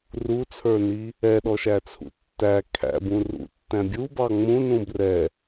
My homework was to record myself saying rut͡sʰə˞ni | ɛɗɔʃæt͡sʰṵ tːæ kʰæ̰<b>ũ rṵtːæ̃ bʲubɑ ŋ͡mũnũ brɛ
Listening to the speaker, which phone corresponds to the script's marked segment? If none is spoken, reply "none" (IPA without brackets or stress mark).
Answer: b